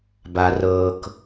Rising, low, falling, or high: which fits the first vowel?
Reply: low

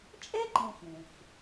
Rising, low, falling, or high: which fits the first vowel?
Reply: high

